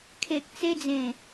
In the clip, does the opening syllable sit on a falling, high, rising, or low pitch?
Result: low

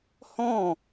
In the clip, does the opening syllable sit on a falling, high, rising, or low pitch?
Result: falling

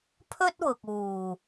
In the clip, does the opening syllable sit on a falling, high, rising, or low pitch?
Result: high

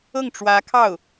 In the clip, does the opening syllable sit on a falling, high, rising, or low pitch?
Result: falling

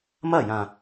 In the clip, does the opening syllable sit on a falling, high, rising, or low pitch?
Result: falling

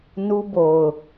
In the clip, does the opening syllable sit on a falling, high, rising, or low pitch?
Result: high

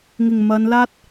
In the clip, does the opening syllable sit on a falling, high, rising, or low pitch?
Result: low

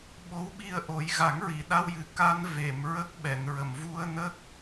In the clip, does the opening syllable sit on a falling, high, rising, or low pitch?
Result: rising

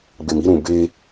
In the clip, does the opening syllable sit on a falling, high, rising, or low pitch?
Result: low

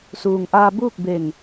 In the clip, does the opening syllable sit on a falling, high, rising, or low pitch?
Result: low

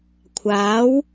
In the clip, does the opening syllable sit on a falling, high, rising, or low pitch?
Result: rising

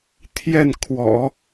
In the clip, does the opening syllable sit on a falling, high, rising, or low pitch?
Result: falling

